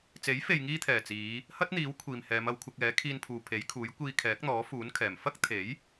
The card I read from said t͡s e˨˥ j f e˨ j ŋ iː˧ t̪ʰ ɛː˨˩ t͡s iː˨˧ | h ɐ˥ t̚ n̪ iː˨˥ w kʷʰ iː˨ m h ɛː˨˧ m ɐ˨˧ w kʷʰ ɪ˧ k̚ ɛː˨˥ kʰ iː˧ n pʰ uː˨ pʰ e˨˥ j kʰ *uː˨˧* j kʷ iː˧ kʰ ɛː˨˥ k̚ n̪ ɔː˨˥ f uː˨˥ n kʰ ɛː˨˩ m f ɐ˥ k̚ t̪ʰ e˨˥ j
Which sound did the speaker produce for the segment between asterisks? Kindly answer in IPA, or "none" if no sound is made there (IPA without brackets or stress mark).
uː˨˥